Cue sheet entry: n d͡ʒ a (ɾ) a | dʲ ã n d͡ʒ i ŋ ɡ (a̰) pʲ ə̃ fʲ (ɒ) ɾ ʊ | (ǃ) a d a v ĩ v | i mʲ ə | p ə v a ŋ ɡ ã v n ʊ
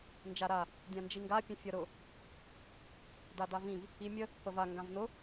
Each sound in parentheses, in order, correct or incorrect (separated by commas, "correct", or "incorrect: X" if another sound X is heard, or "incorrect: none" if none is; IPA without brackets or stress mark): correct, incorrect: a, incorrect: ʌ, incorrect: d